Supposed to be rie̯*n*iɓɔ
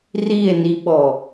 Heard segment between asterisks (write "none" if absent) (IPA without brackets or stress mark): n